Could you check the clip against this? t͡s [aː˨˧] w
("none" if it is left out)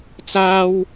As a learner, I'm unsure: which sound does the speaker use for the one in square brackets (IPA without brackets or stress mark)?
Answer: aː˥